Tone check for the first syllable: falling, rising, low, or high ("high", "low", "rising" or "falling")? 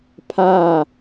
falling